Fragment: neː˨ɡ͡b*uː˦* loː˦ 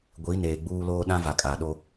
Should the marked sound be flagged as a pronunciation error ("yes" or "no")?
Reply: no